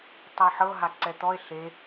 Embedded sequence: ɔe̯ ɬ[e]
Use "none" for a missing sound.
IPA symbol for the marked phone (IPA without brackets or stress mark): e